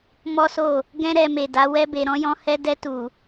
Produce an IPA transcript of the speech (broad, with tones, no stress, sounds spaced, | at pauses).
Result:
m ɔ˦ s o˦˨ | ɡ ɛ̃˦ ɾ ɛ˧ m e˨ d a˨˦ w ɛ˦ b e˧ ɾ ɔ̃˦ j ɔ̃˦ h ɛ˦ d ɛ˧ t u˨